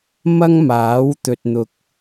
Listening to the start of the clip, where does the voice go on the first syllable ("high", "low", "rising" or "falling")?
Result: high